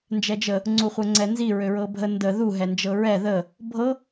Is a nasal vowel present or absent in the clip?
absent